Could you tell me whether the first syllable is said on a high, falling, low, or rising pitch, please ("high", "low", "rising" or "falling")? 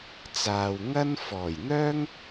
low